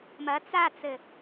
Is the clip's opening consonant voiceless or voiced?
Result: voiced